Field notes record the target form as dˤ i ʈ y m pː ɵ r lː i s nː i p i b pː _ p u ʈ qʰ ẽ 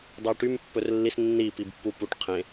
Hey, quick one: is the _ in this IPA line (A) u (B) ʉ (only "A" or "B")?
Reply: A